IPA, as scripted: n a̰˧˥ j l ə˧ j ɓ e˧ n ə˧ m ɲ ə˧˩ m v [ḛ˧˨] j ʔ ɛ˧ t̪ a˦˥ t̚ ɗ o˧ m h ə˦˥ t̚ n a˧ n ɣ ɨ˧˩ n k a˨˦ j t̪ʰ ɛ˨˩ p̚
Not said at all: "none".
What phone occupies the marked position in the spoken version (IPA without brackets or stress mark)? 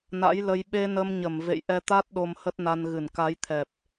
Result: ḛ˧˨